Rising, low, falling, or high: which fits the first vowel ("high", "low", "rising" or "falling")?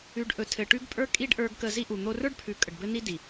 rising